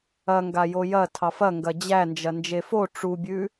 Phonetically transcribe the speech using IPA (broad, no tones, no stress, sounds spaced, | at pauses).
ɐ ŋ ɡ a j o j ɐ tʰ ɑ f ɐ ŋ ɡ ɐ d͡ʑ æ n d͡ʒ ɐ n d͡ʒ e f o ʈ͡ʂ u bʲ ʉ